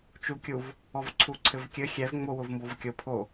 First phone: t͡ʃ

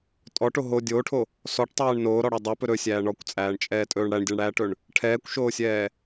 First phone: tʼ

